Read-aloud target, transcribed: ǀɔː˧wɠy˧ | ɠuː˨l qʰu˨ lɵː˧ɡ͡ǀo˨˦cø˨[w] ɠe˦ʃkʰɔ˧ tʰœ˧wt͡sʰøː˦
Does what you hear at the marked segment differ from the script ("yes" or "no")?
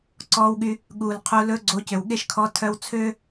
no